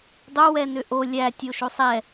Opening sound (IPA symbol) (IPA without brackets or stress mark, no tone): dˤ